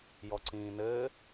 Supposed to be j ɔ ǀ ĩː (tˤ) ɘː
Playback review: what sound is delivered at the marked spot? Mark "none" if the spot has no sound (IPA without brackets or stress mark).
n